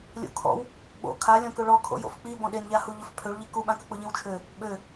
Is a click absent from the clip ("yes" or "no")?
yes